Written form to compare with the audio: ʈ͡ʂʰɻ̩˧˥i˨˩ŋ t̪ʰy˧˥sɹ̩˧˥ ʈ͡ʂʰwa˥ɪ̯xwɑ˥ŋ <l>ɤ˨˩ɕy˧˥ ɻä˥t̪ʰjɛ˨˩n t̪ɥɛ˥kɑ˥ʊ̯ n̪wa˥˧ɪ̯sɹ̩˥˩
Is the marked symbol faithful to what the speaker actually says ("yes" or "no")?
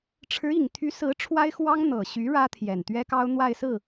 no